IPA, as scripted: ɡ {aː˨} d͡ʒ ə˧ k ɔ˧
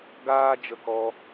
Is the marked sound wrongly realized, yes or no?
yes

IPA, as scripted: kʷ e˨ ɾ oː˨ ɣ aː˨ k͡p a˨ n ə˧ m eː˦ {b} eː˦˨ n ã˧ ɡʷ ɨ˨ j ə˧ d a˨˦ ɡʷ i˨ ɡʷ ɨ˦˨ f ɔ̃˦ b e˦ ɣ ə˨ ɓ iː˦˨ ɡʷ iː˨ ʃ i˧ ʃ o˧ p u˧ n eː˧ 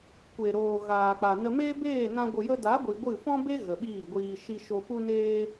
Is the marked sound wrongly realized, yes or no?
no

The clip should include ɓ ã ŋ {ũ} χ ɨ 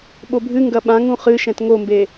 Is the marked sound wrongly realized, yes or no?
no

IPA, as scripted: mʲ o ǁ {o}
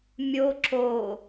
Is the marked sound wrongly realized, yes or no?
no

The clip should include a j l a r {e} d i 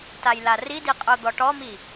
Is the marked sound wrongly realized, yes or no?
yes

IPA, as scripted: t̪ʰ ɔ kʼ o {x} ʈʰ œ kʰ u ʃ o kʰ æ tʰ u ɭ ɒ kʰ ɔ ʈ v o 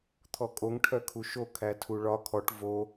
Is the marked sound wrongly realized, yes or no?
yes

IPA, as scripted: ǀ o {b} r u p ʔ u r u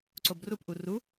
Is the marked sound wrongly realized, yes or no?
no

